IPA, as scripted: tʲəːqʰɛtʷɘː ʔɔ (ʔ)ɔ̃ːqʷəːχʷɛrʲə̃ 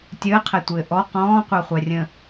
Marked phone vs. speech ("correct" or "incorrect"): incorrect